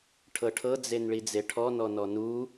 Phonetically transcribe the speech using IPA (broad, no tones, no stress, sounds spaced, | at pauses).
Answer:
ʈʰ ɤ ʈʰ ɤ d͡z e n ɭ i d͡z e ʈʰ ɔ n ɔ n ɔ n u